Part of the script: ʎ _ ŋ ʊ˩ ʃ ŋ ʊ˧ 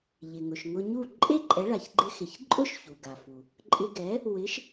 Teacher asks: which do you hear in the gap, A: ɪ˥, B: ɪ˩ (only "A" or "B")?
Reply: B